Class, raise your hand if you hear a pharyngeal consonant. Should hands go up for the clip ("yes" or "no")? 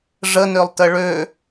no